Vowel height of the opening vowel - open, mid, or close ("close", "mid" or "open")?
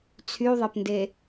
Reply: close